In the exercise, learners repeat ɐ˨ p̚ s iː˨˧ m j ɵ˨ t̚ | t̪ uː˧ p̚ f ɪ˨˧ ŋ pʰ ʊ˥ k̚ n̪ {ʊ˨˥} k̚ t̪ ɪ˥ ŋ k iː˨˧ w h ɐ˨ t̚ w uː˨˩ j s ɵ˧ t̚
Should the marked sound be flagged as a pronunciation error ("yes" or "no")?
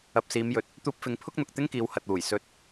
yes